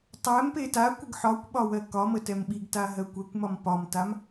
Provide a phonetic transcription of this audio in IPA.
tˤ ɛ m p e t a kʷ ə ɡ ħ ɒ kʷ ɓ ɒ w ɜ k ɒ m ə t ɛ m ɓ i ɡ t a ɦ ɜ kʷ ɛ kʷ m ɒ m p ɒ m t a m

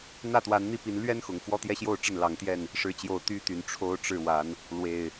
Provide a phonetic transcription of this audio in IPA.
n̪ ä˥˨ t̪ w a˨˦ n n̪ i˥˨ p i˨˦ n l ɥ ɛ˦ n x ʊ˨˩ ŋ f w ɔ˦ t̪ j ɛ˦ ɕ j o˥˨ ʊ̯ ʈ͡ʂ ə˥˨ n l ɑ˨˦ ŋ t̪ j ɛ˥˨ n | ʂ ɻ̩˨˦ t͡ɕ j o˨˩ ʊ̯ t̪ y˦ t̪ y˨˩ n ʈ͡ʂʰ o˦ ʊ̯ ʈ͡ʂ ɻ̩˥˨ w a˨˦ n | l w e˨˩ ɪ̯

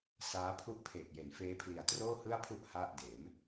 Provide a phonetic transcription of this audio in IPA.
s aː˦˥ pʰ u˥˩ ʔ pʰ eː˨˩ k̚ j e˩˦ n f eː˦˥ pʰ l i˨˩ a̯ t r oː˥˩ h ɯ˥˩ a̯ pʰ u˥˩ ʔ h a˥˩ ʔ d eː˩˦ m

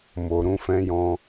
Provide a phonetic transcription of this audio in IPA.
m o˨ ɾ ũ˧ f ɛ̃˧ j ɔ̃˧

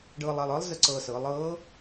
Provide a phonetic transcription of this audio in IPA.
ɖ ɤː˧ lˠ a˧ lˠ ɤ˧˥ lˠ z ə˥ ǀ ɤ˧ s ɤ˩˧ lˠ ɤː˧˥

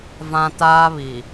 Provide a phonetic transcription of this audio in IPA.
v ã˦ t aː˦ β i˨

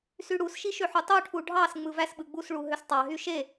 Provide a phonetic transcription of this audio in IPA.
s y ɽ u s ʃ i ʃ ø ħ u tˤ o ʈʰ u ɖʱ ɑ s ŋ͡m ɯ v æ s ɓ ɯ ɡ͡b u s ɭ u ɦ ø s tˤ ɑ ɦ y ʃ e

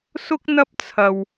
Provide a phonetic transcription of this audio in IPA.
s ʊ˥ k̚ n̪ ɐ˥ p̚ t͡sʰ ɐ˧ w

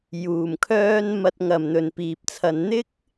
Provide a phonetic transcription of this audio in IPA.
j uː˨˩ m kʰ œː˥ n m ɐ˧ t̚ ŋ ɐ˨ m n̪ ɵ˨ n p iː˨ p̚ t͡sʰ ɐ˧ n n̪ ɪ˥ k̚

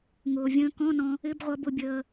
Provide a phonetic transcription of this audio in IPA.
ŋ ʊː˩ vʲ ə̃ː˧ k ɔ̃˧˥˧ n ɔ̃˧ | ɪ˧˥˧ b ʁʷ ʌ˧ b ʊ˧ bʲ əː˧

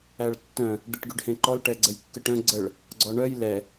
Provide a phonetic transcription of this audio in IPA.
æ ɭ tː œ̃ | d̪ i ʈ ɡ y ɖ h ẽ ǃ ɔ l ʈ ɛ ɡ͡ǀ ə j kː ə ʈ œ̃ ɡ͡ǀ ə ɭ | ɡ͡ǀ ɔ ɳ œ j l ɛ

